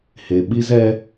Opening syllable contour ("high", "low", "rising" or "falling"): low